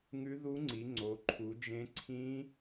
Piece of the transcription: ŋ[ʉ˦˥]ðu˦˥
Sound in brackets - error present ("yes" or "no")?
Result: no